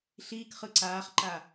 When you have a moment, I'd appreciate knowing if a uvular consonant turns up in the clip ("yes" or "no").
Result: yes